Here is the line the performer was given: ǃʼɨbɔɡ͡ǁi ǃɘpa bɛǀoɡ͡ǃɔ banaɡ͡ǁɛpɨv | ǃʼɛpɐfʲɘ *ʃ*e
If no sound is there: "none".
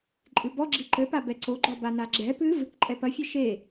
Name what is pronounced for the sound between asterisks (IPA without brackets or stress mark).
ʃ